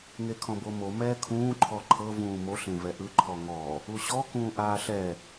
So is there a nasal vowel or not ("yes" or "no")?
yes